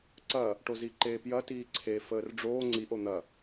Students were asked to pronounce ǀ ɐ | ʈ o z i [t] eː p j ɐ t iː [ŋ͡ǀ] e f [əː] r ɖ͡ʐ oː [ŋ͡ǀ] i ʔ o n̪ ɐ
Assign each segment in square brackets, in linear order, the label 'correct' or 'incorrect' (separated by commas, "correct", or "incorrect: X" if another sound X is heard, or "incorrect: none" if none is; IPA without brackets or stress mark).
incorrect: ǃ, incorrect: ǀʰ, correct, correct